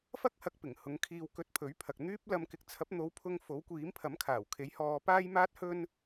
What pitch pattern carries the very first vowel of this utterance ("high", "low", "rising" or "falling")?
high